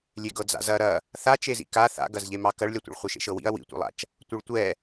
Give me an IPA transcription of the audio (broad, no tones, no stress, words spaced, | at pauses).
lʲeɡɤd͡za̰zɐ ɾɐ | θat͡ʃezḭ ka θa̰ɡɐzʎemɑ kɐɭlʲatʷḛɭ χʷeʃḛʃɤwḭɐ̯ wḭtʷḛlˠa̰t͡ʃ | tʷɤɭtʷɛ